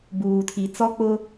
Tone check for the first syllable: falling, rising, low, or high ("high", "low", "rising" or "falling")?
low